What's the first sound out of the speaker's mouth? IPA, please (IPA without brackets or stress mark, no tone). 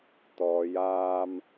t̪